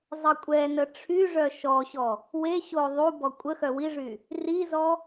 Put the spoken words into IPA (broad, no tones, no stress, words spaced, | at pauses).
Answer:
zˤəkʷʼɛnə ʈ͡ʂʰyʐœ ʃɔɕɔ | weɕo ðˤu bɔkʷʼəxœ wiʐy | rizɔ